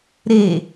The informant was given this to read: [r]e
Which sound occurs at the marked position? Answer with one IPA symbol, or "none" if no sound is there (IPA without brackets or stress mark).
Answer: ɾ